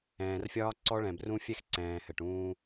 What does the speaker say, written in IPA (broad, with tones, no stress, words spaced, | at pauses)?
ɛ̃ː˨rfʲɒː˦ǀɔ˦ ɭɛ̃˨brũ˦fʲɛ˦xǀɛ̃ː˨ hɘ˨ʈũː˦